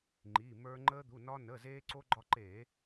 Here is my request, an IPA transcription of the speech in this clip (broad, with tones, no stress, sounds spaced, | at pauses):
ŋ͡ǃ i˩˧˩ m ə˞˧ ŋ͡ǃ əː˧ d̪ u˩˧˩ n ɒ˧ n ə˩˧˩ z eː˧ ǀ o˧ ɡ͡ǃ ɒ˧ ǃ eː˧˩˧